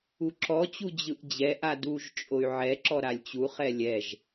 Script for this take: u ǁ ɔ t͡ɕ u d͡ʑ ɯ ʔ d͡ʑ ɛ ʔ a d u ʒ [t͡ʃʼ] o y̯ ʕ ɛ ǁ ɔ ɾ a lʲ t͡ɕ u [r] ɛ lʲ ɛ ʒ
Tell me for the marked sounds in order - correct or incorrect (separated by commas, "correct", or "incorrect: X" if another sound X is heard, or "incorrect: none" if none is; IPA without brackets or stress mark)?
correct, incorrect: χ